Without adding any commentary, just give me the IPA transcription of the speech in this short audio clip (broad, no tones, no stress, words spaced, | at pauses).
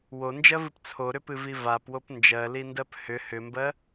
wond͡ʒɜvɨp t͡sʰoɾʏpɨvi vapwop nd͡ʒɜlindɜp hʏ hʏmbɜ